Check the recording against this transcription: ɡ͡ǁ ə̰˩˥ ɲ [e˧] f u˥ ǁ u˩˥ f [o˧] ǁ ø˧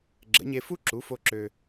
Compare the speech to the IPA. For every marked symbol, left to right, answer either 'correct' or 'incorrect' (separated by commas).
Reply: correct, correct